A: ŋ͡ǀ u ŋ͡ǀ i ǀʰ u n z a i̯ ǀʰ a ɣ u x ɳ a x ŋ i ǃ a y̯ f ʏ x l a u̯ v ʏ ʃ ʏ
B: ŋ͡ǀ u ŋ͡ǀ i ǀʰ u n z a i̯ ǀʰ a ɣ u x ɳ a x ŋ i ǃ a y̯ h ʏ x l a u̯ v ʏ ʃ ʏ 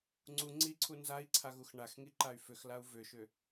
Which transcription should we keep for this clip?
A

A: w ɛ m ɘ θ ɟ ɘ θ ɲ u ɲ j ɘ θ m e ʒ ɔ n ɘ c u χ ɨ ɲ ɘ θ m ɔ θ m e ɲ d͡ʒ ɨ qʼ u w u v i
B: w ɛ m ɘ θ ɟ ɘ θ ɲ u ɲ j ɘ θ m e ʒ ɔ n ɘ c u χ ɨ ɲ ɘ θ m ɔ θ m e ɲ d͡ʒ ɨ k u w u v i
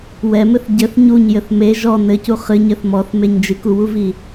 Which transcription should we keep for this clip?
B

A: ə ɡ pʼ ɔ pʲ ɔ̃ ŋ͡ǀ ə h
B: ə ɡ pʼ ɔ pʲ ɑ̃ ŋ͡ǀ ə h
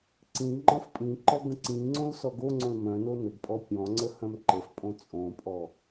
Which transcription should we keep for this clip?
A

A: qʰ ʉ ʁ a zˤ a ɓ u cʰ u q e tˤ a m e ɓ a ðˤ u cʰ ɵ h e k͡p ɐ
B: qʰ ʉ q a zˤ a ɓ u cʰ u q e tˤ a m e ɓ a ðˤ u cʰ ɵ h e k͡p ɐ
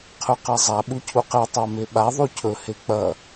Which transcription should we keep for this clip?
B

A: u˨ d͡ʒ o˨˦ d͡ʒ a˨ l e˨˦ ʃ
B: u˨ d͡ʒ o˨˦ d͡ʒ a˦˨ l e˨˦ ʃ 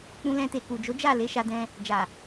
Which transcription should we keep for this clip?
B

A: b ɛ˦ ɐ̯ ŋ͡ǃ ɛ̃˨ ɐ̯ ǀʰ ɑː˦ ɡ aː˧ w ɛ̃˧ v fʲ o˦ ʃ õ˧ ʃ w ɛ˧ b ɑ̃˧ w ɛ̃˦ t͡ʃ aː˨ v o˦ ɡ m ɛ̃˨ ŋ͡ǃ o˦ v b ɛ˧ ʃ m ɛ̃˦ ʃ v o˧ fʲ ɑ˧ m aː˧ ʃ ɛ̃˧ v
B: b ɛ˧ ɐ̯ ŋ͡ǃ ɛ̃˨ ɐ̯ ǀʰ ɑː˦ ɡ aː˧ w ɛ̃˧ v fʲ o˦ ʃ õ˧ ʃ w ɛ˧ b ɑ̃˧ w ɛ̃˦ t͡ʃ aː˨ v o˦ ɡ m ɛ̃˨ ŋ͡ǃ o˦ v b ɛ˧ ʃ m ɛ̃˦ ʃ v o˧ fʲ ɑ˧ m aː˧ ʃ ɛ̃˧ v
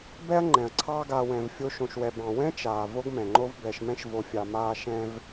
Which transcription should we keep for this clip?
A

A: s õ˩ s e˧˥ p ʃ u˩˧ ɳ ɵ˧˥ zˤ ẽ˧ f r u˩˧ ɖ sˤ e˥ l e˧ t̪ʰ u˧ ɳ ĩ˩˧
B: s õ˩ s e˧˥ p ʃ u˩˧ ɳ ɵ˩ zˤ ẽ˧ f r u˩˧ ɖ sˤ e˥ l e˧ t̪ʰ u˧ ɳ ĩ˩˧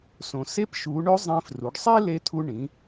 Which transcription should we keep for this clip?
A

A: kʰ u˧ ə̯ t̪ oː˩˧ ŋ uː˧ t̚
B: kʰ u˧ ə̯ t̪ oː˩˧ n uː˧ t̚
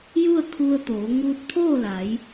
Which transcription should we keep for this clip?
A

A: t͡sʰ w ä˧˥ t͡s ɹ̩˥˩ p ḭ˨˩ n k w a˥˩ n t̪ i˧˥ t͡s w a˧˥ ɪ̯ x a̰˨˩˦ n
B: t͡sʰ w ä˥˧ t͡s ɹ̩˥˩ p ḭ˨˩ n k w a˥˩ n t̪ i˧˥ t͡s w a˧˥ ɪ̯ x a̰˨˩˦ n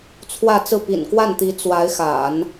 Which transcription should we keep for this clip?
B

